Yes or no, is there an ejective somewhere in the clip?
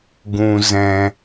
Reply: no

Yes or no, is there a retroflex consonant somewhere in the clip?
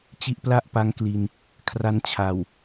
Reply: no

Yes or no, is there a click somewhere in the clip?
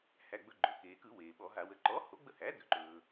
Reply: yes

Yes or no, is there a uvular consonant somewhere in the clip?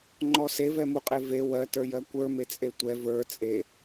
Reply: yes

